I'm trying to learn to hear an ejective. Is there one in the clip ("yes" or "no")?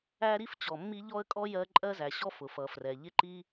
yes